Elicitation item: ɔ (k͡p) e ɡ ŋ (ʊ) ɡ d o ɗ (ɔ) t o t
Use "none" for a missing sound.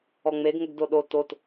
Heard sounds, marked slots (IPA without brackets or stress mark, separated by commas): ŋ͡m, ʊ, o